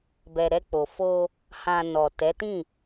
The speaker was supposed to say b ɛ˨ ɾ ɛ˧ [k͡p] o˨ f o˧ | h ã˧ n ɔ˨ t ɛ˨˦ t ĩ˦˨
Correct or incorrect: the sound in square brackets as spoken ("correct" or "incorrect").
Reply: correct